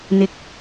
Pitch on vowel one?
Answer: high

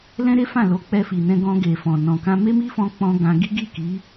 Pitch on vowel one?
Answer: high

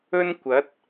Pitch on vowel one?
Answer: high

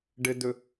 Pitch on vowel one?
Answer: low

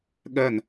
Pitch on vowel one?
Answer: falling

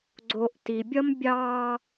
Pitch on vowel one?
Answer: low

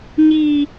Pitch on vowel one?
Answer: high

